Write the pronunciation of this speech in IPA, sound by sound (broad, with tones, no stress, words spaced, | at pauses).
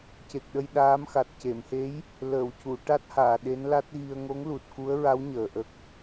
ce˨˩k̚ɗə˧j ɗaː˧˥mxa˨˩t̚ ce˨˩˨mhe˧˥j | ləː˨˩˨wcu˨˩˨ ʈa˦˥t̚haː˨˩˨ ɗe˧˥nla˦˥t̚ɣi˧ə̯ ŋo˧˥ŋlu˨˩t̚ku˧˥ə̯ɹa˧˥w ɲəː˨˩ʔə˦˥k̚